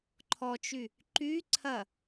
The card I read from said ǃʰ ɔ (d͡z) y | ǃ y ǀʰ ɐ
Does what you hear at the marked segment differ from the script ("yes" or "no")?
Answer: yes